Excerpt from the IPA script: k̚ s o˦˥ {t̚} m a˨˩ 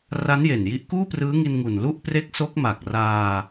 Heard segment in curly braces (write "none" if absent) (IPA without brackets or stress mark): k̚